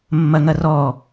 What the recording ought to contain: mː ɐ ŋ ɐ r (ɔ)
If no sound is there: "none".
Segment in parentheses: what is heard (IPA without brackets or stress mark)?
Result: ɔ